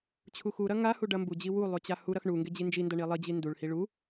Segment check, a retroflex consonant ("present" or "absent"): present